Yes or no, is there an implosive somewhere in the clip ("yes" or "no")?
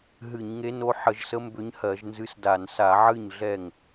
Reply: no